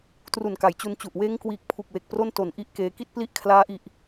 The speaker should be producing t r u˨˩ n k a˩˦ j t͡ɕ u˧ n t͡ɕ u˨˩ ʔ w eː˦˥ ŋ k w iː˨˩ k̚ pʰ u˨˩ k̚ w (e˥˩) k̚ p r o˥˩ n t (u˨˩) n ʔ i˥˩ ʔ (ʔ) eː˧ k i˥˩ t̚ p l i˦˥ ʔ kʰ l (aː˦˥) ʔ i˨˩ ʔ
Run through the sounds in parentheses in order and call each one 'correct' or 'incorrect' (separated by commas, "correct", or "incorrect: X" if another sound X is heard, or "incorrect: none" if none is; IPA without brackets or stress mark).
incorrect: e˨˩, incorrect: o˨˩, incorrect: k, correct